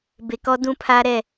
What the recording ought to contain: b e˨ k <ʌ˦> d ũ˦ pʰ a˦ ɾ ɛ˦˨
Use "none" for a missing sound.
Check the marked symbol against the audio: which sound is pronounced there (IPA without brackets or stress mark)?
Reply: ɔ˦